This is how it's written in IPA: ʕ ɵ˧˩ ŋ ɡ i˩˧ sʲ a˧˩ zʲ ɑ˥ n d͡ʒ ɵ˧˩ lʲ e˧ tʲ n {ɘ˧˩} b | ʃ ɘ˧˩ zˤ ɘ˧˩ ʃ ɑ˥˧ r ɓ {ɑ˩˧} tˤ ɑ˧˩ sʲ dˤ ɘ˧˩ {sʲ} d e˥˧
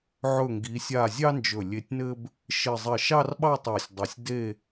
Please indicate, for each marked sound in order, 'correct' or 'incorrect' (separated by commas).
incorrect, incorrect, correct